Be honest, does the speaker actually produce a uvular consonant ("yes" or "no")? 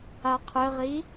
yes